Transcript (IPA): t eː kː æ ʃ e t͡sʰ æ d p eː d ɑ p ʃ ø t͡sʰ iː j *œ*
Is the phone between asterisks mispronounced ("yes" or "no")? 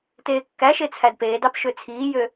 yes